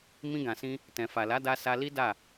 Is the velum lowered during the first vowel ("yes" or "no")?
yes